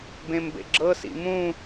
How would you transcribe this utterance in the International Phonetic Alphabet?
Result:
b ẽ m b ḛ ɡ͡ǁ ɤ s ḭ m ũ

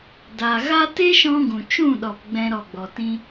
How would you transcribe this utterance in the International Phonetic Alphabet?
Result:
d a˨ ɣ a˦ t e˦ ʃ ɔ̃˧ ɡ ũ˨ t͡ʃ ũ˦˨ ɗ ɔ˨ p ɡ͡b ɛ̃˧ ɾ ɔ˨ ɡ͡b ɔ˨ t ĩ˧

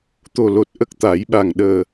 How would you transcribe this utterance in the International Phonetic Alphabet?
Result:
t̪ o˨˩ l o˨˩ t̚ ʔ ə˦˥ k̚ t̪ a˨˩˦ j ɓ a˨˩ ŋ ɗ əː˨˩

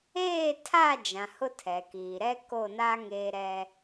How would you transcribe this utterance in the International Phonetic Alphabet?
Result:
eː˦˨ tʰ a˦˨ d͡ʒ ã˨ h ʊ˦ tʰ ɛ˨ k iː˨ ɾ ɛ˦ k o˦˨ n a˦ ŋ eː˦ ɾ ɛ˦

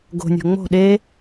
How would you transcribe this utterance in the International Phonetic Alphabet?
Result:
ɡ o̤ nʲ o̤ ŋ͡m o̤ ɗ e

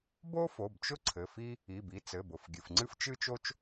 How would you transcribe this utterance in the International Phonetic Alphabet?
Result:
b o˥ f o˩˧˩ b t͡ʃ ʊ˥ ǀʰ ɘ˩˧˩ f i˥ | i˩˧˩ b i˩˧˩ t͡s ɘ˩˧˩ b ʊ˩˧˩ f ɡʲ ɨ˩˧˩ f ŋ͡ǀ ɨ˥ f t͡ʃ ɨ˥ t͡ʃ o˥ t͡ʃ

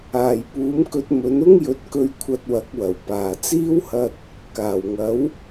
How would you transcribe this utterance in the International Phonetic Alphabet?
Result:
aː˨˩ j p uː˨˥ m k ɵ˧ t̚ m ɵ˨˥ n ʊ˥ ŋ j ɵ˨˥ t̚ k ɵ˧ ɥ kʷʰ ɐ˧ t̚ w ɐ˨˥ k̚ w ɐ˨˩ w p aː˨˩ t͡s iː˥ w h ɐ˧ t̚ | k aː˨˩ w ŋ ɐ˨˥ w

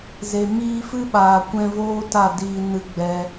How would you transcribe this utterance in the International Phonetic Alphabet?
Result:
z e˨ m iː˧ f ɨ˦ ɓ aː˨ kʷ ɛ̃˧ v oː˦ t a˦˨ d iː˧ n ɨ˧ ɡ͡b ɛ˧

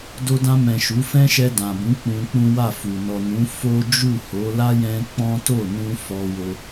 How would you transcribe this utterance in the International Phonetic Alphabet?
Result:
d o˧ d ã˧ m ɛ̃˨ ʃ u˨˦ f ɛ̃˦ ʃ ɛ˧ d ã˨ b ũ˨˦ k͡p ũ˧ k͡p ũ˦ w a˦˨ f u˨ n ɔ˨ n ũ˨˦ f o˦ d͡ʒ u˦˨ h o˨˦ l a˦ j ɛ̃˧ k͡p ɔ̃˦ t o˦˨ n ũ˧ f ɔ˧ w o˧

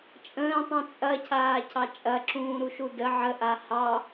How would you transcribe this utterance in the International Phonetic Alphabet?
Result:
t͡ʃʼ ə̃ː tˤ ũ t͡sʼ ɐ cʰ aː cʰ ɑ t͡ʃʼ ɐ ǁ ũː ɾ u ʃ u d ə ʕ ə ʔ a h ɑ

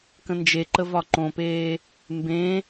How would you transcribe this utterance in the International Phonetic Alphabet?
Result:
k ə̃ n d͡ʒ e ǃ ə v ɒ ǃ õ p eː | m b ẽ

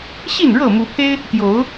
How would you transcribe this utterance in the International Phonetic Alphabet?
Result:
ɕ i˥˨ n ɻ ɤ˥˨ m u˨˦ pʰ e˦ ɪ̯ | t̪ j o˨˦ ʊ̯

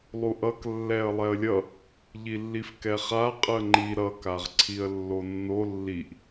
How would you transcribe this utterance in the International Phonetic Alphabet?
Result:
lˠ u ʔ ʌ k lː ɛ ə̯ lˠ ɛ ə̯ lʲ ʌ | ʎ i lː i f k ɛ χ a qʼ ɯ ə̯ ŋ͡ǃ i ɾ ʌ k a ʁ ǀʰ i ə̯ lː o nː o lː i ʔ

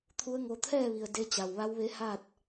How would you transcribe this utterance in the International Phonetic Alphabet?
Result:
t̪ʰ u˧˥ ə̯ ŋ o˧ t̪ʰ ɛː˥˨ ʋ i˩ ə̯ d e˧ t͡ɕ a˩ w ʋ a˧˥ w ʋ e˧˥ h a˥˨ t̚

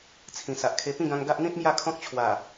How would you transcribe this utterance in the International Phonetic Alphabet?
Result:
t͡sʰ ĩ˨˩ s a˨ ʔ kʰ e˧ p ĩ˥˧ ɡ ã˧ ŋ ɡ a˦ ʔ n̪ ĩ˦ t̚ m j a˥˧ kʰ ɔ̃˦ k̚ t͡ɕʰ w a˨˩

